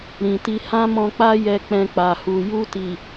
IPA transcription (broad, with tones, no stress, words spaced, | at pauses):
ɾĩ˨ti˧ hã˦mɔ̃˧k͡pa˦ jɛ˧k͡pɛ̃˧k͡pa˨hu˨ ju˧ti˨